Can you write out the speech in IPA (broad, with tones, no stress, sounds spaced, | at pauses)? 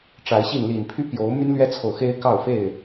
ʈ͡ʂ a˨˦ ɪ̯ ɕ i˥˨ n l i˨˩ n pʰ y˦ p j o˨˦ ʊ̯ m y˦ n l ɥ ɛ˦ t͡sʰ o˨ ʊ̯ x e˦ ɪ̯ k ɑ˥˨ ʊ̯ f e˥˨ ɪ̯